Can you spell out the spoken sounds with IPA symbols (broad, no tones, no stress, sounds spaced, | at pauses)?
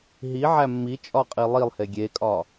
ɦ i ʕ æ mː i t͡ʃʼ ɒ qʼ i lˠ i lˠ h e ɡʲ e kʼ ɒ